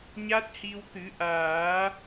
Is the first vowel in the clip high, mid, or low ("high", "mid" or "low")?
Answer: low